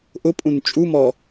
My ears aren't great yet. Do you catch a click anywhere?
no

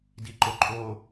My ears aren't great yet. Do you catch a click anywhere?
yes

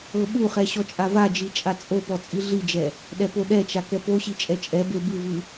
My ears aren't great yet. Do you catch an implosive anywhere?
yes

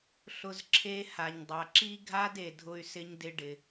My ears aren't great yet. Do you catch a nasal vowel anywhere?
no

